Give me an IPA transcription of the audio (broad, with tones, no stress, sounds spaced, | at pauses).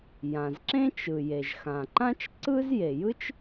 j ã˩ z ǁ ẽ˥ t͡ʃ ɯ˩ j e˩ ʒ x ã˩ ǃ ã˥ t͡ʃ ǀ ɯ˥ z j e˩ j ɯ˥ t͡ʃ